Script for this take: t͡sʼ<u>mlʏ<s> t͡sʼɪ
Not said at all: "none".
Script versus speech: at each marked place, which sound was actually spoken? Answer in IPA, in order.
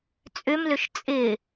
ʏ, ʃ

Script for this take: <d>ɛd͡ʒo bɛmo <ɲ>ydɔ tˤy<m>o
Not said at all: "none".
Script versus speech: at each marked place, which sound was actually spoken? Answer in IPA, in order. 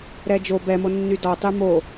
ɾ, nː, m

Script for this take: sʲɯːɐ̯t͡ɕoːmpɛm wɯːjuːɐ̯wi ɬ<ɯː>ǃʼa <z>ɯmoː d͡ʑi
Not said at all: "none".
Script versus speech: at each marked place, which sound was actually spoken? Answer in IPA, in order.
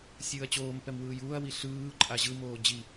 ɯː, ʑ

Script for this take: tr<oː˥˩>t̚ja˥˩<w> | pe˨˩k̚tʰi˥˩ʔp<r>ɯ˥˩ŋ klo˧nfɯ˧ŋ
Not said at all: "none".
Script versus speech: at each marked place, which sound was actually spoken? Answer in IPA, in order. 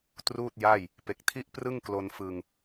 uː˥˩, j, r

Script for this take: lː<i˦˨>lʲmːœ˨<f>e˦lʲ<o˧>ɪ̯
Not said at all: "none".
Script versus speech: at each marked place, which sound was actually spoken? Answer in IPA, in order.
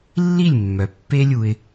i˦˨, pː, u˧

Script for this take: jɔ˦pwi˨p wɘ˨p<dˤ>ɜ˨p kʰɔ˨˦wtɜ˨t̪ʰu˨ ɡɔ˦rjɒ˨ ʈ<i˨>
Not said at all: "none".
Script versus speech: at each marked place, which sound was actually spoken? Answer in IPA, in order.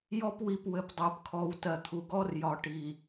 dˤ, i˨

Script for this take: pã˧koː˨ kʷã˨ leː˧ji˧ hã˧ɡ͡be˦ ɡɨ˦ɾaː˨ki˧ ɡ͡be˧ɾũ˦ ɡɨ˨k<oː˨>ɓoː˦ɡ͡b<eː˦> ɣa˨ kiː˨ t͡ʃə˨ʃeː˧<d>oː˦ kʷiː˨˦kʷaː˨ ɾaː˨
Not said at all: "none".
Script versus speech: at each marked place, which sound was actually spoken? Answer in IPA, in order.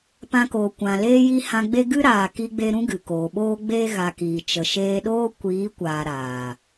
oː˨, eː˦, ɗ

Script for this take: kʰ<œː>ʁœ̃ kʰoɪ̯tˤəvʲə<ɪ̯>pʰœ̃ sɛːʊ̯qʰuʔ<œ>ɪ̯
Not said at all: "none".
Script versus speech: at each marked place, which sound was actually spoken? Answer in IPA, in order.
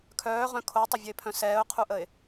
œː, ɪ̯, ə

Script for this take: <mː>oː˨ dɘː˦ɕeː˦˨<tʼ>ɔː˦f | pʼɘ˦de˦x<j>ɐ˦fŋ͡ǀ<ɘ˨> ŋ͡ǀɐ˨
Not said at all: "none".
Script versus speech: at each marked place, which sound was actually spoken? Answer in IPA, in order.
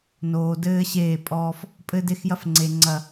n, pʼ, j, e˨

